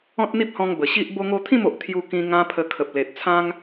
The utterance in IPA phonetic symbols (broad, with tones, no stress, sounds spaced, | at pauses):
ɔ̃˦ t̚ n̪ i˦ p̚ h ɔ̃˧ ŋ b ə˨˩ ɕ i˦ ʔ b o˧ ŋ o˧ t̪ʰ ĩ˥˧ m o˨ ʔ t̪ʰ j u˧ k ĩ˧ ŋ ã˦ pʰ ə˧ kʰ ə˨ p̚ l e˨ t̚ t͡sʰ ã˦ ŋ